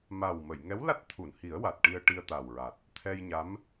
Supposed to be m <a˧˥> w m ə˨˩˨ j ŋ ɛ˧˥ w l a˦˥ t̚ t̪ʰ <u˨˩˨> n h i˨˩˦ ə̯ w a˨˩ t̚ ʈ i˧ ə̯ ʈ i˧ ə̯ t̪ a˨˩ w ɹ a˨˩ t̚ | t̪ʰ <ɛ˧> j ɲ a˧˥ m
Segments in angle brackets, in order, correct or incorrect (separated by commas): incorrect, correct, correct